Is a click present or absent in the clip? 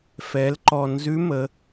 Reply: present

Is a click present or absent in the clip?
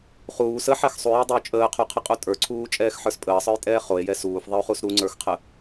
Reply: present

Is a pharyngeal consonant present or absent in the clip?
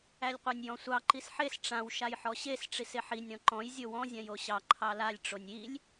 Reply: present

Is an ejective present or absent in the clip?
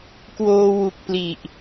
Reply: absent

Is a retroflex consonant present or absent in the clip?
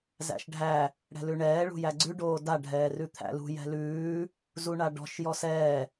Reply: present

